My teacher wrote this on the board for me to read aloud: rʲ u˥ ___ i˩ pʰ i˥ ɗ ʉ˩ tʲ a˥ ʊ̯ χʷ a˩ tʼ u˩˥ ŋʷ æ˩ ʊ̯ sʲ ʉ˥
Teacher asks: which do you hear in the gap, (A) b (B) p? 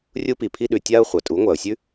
B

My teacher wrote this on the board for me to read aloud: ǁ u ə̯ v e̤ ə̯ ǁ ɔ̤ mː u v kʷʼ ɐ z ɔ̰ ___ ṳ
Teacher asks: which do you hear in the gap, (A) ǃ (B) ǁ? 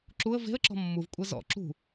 B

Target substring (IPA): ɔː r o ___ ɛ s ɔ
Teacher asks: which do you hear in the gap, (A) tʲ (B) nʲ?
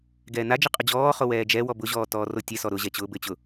A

